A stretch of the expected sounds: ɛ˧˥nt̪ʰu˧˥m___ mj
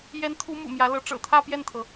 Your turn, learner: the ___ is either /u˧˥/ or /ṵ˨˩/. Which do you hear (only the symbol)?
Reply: ṵ˨˩